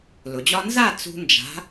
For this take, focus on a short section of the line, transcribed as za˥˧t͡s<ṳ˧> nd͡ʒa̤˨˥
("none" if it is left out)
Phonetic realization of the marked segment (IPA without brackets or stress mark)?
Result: ṳ˧